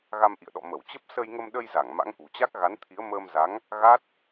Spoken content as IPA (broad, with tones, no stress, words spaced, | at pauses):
ɣa˧mʔḭ˧˨ə̯ɗɔ̰˧˨ mə˧˩wt͡ɕə˦˥p̚ sə˧jŋə˧mɗə˧jza˧˩ŋ ma̰˧˥ŋʔṳ˨˩t͡ɕa˦˥k̚ ɣa˨˦nt̪ʰi˨˦ə̯ məː˧mza˨˦ŋ | ɣa˦˥t̚